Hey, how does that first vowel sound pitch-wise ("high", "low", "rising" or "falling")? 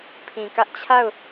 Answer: low